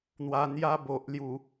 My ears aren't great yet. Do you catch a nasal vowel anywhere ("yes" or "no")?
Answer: no